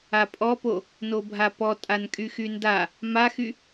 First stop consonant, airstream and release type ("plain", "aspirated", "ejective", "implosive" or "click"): ejective